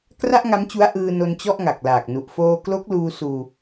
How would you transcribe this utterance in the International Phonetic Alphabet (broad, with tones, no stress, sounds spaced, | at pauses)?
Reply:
k r a˥˩ ʔ ŋ a˦˥ m t͡ɕ u˦˥ a̯ ʔ ɯː˧ n o˧ n t͡ɕ ɔ˥˩ ʔ ŋ a˨˩ k̚ l aː˨˩ k̚ n u˨˩ ʔ f oː˧ k l o˦˥ k̚ l uː˧ s uː˧